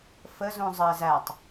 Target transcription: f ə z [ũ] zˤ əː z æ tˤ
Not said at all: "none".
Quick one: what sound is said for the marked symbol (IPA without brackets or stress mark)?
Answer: ũ